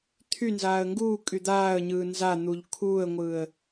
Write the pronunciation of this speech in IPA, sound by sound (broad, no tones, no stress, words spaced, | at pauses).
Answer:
t̪ʰynzaːə̯ ŋɡuː kʼyd̪aːə̯ɲɯː nzan̪uʎ kʰuːə̯ŋʷɯːə̯